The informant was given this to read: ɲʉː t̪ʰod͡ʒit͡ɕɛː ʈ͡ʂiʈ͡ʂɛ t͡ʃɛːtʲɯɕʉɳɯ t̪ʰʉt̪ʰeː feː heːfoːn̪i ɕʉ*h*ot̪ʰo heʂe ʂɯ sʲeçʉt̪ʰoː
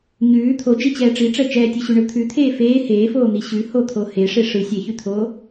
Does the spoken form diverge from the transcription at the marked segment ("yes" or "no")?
no